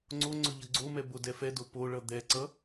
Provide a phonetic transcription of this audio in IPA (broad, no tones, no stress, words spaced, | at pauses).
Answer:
ŋ͡ǀo ŋ͡ǀɵʎʌɡ͡ǀomɛ bodɛfɛdo poɭʌ d̪ɛǀʌ